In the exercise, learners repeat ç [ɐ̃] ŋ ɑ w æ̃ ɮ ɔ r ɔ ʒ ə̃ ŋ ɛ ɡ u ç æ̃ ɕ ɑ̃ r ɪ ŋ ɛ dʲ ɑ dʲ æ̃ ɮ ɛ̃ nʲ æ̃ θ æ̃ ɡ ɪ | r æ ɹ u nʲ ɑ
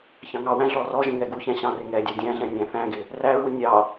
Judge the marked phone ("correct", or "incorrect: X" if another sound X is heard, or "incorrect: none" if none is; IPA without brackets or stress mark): incorrect: ɑ̃